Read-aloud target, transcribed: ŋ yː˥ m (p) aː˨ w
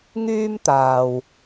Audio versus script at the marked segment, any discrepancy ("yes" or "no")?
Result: yes